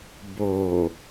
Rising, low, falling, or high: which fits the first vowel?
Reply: low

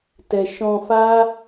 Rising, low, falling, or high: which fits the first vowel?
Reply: low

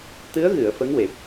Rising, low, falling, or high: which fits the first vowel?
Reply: rising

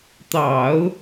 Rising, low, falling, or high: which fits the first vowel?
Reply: low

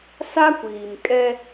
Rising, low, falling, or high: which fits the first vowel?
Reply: high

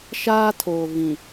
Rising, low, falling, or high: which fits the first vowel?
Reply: high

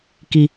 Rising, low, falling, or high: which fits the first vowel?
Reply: low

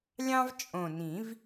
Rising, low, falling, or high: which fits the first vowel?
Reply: high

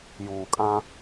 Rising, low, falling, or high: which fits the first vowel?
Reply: low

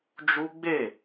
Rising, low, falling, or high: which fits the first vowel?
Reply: high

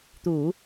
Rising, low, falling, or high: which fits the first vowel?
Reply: low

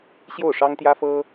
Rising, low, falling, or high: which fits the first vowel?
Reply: falling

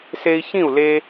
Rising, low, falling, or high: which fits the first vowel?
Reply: high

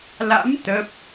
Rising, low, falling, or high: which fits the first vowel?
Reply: rising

